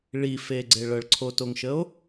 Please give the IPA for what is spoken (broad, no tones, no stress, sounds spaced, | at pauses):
ɭ i f e ɡ͡ǀ e ɭ ɤ ɭ ǀʰ o t o ŋ ʃ ə o̯